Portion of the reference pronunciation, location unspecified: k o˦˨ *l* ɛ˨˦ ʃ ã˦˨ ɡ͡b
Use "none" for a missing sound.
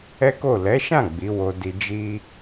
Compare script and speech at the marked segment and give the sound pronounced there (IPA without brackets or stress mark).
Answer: l